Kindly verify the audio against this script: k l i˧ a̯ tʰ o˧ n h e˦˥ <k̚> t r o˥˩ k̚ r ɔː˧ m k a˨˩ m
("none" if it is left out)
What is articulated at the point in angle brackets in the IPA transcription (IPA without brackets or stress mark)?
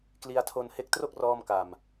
k̚